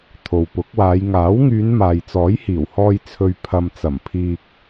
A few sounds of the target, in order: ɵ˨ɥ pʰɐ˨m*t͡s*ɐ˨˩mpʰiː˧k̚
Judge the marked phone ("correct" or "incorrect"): correct